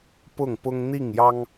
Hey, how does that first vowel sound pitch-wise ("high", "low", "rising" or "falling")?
falling